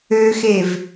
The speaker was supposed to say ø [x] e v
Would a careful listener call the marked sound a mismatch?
no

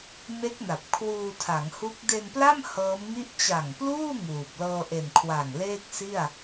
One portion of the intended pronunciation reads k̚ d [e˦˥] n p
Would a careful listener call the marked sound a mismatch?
yes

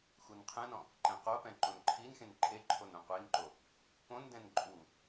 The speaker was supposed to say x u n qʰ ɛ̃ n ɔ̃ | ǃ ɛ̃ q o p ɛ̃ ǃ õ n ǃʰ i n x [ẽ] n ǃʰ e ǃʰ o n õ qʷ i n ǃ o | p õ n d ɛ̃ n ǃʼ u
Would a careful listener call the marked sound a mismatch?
no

